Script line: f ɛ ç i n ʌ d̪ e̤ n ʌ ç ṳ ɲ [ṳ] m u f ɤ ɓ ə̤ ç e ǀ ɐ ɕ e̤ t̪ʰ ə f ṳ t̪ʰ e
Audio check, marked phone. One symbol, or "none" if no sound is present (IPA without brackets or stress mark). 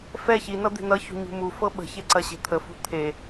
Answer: ṳ